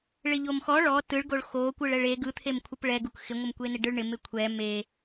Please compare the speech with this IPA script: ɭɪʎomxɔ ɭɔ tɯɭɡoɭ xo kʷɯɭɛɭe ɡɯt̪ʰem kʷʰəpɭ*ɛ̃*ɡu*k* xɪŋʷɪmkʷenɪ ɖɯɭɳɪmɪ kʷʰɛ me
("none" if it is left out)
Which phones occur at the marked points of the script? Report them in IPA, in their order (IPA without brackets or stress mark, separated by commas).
ɛ, k